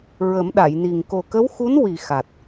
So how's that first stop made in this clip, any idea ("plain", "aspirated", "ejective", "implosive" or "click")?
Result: implosive